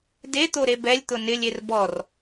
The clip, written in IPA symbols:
d e t̪ o ɾ e b ɛ lʲ t̪ ʊ n ɪ lʲ e r b ɔ r

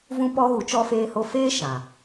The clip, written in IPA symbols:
v ũ˦ p ɔ˦ ɣ u˨˦ t͡ʃ ɔ˧ f eː˧ h o˧ f eː˦ ʃ ã˨

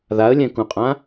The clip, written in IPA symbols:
ð a ə̯ lʲ ɛ̃ k ũ qʼ ã

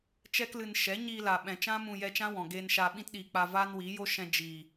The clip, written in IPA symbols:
t͡ʃ ɛ˦ k l ɨ˧ n ʃ ɛ˨˦ ɲ iː˧ l a˨ ɓ ɛ̃˨ t͡ʃ ã˦ m ũ˧ j ɛ˧ t͡ʃ ã˦ w ɔ̃˨ ɡ eː˧ n ʃ a˧ ɓ ĩ˧ t ɗ iː˨ k͡p a˧ v aː˦ n w iː˨˦ j o˦ ʃ ɛ̃˧ d͡ʒ iː˨

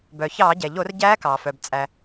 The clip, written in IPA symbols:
b œ˩ ç ɑː˧˩˧ ɟ ɛ˩ ʎ o˧˩˧ r ɟ æː˧˥ k ɑː˩ f œ˩ b t͡sʼ æ˩

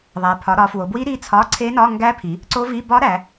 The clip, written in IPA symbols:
ðˤ æ˩˧ pʰ ɒ˩˧ ɾ ɒ˩˧ f w o˩˧ b w i˧˥ ɾ i˧˥ t͡sʰ ɒ˧˥˧ ǀʰ e˧˥ n ɒ˧˥˧ ŋ ɡ æ˧˥ pʰ i˩˧ | ǀ o˧˥ v i˧˥˧ b ɒ˧˥ ɾ æ˩˧

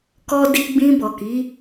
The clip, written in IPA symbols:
k ɔ˧ d i˧ ɡ͡b ĩ˧ b ɔ˨ k i˨˦

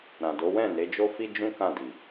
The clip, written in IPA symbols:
ɾ ã˨ d o˨˦ w ɛ̃˦˨ n e˨˦ d͡ʒ o˦ f i˦ d͡ʒ ũ˦ k ã˦˨ d i˨

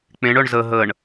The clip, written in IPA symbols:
k͡p ẽ ɳ œ ɳ z ə ɦ ə ɳ

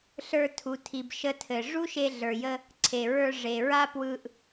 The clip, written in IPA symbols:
ɬ ə˞˧ tʰ u˩ tʰ i˩ b ʃ ə˧ tʰ ɘ˩ ʐ u˥ ʃ e˧ ɮ ə˞˩ j ə˧ | ǀʰ e˩ ɹ ə˞˧ ʐ e˩ ɹ a˥ p w ɯ˧ ʔ

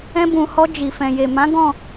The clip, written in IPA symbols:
ɛ̃˧ b ũ˨ h ɔ˧ d͡ʒ i˨ f ɛ̃˨ j e˨ m ã˨˦ ɡ ɔ̃˦˨

